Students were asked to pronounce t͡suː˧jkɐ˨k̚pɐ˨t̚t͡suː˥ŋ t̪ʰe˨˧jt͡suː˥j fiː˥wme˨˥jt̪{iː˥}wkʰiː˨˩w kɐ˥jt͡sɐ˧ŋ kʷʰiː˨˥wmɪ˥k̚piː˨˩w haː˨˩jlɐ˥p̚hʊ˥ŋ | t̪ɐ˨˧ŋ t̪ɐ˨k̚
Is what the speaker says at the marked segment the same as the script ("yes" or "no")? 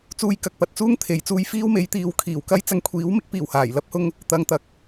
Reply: no